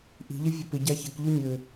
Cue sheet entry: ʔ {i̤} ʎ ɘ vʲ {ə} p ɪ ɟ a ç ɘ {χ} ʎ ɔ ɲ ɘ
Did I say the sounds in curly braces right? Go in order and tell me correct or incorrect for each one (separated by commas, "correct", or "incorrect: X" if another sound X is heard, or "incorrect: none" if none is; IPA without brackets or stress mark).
correct, correct, incorrect: k